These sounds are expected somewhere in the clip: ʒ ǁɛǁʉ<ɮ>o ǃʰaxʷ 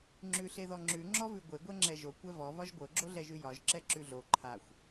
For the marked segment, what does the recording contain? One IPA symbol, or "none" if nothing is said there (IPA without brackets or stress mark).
ɮ